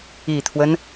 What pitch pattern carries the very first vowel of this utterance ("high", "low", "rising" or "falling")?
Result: low